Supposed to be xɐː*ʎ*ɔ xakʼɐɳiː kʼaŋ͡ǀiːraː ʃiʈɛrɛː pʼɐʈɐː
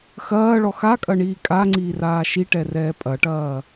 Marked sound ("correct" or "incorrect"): incorrect